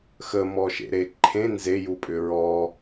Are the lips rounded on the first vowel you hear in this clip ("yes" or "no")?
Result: no